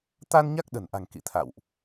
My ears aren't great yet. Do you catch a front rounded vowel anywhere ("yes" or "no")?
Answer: no